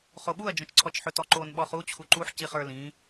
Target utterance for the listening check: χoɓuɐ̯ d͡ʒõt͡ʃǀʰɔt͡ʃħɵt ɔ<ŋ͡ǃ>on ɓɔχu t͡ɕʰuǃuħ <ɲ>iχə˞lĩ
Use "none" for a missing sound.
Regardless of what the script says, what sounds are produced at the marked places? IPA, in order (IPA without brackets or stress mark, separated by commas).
ǃ, c